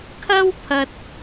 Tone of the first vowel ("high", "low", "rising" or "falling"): high